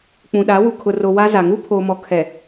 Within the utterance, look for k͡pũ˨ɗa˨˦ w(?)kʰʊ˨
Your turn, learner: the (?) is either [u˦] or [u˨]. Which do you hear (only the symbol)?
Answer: u˨